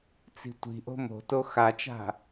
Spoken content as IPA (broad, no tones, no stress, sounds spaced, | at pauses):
t͡s i̤ tʷ i̤ ʔ o̤ m o̤ t o x a t͡ʃ a̤